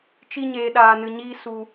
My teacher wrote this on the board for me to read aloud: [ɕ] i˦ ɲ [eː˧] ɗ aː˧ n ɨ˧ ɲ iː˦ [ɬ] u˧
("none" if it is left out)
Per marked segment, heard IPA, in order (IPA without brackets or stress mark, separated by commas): t͡ʃ, eː˧, s